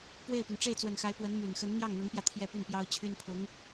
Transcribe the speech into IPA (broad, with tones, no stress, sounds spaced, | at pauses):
p w e˥˩ ɪ̯ p y˩ n ʈ͡ʂ e˥˩ ɪ̯ t͡s w ə˨˩ n x a˧˥ ɪ̯ p w ə˧˥ n m y˨˩ n x ə˧˥ n n̪ j ɑ˥˩ ŋ n̪ ʊ˧˥ ŋ p j ä˧ t̪ʰ j ɛ˥˧ p y˥˩ n p j ɑ˥ ʊ̯ t͡ɕʰ y˥ n pʰ ʊ˧˥ ŋ